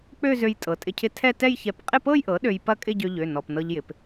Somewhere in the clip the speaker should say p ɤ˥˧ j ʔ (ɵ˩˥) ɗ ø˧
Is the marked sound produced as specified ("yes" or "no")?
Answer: no